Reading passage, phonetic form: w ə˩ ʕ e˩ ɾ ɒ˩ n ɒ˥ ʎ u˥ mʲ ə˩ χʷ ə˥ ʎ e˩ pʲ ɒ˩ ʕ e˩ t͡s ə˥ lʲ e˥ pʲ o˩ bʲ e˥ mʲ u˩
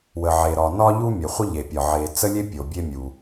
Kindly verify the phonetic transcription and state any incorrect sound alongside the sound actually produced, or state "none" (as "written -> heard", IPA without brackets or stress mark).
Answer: none